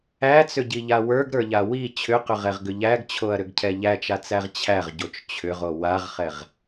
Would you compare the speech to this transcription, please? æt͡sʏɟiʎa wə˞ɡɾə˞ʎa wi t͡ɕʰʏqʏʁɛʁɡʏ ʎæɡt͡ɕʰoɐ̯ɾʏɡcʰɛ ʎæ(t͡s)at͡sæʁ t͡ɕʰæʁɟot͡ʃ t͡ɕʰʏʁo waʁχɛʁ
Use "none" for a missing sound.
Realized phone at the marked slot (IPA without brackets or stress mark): t͡ʃ